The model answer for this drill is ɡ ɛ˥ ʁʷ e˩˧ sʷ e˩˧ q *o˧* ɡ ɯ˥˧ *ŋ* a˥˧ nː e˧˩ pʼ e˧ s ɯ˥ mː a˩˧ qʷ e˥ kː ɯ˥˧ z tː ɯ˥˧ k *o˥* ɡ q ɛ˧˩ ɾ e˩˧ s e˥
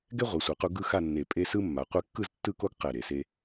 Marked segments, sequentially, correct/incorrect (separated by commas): incorrect, incorrect, correct